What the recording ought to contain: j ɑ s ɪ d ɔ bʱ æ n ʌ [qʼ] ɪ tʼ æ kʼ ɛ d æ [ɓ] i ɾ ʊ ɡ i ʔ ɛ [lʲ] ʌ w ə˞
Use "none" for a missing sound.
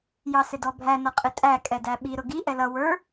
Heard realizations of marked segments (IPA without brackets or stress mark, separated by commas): qʼ, ɓ, l